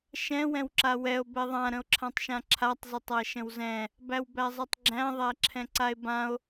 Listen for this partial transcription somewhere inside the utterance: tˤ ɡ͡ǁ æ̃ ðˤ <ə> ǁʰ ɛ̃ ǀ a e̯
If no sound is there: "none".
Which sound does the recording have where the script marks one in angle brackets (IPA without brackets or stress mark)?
æ